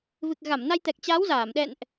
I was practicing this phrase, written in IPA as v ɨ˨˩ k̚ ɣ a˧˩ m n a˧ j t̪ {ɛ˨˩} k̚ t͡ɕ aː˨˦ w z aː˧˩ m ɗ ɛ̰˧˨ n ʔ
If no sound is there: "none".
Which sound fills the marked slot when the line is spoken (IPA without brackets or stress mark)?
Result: ɛ˨˩